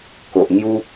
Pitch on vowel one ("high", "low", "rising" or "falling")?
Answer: low